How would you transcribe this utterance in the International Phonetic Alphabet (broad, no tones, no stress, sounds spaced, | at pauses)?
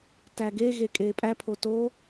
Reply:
t æ ɡ e ɣ e kʼ eː pʼ æ pʰ o t o